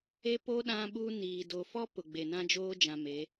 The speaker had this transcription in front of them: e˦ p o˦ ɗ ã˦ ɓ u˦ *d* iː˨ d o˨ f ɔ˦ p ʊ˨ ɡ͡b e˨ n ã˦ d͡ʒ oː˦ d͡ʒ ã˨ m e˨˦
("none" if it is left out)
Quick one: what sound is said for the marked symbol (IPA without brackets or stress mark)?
n